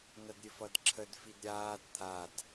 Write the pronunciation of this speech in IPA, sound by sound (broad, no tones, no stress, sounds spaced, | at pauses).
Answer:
n ɐ d ɾʲ ɘ f ʌ d ǁʰ ə d f i d ɾʲ aː d t̪ʰ a d